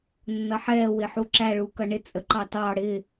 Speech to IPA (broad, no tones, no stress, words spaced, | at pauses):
nːʌħɛ wɪħuǁæ ɭukʌɳɪ t͡sʼəǃɑtɑ ɽɪ